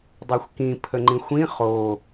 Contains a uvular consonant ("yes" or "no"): yes